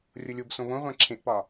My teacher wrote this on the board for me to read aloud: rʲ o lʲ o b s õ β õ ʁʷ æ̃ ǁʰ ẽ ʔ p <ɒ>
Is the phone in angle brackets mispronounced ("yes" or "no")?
no